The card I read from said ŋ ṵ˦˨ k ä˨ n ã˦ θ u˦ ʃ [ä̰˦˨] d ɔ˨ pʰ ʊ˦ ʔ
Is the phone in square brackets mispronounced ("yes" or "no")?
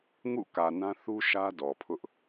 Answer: yes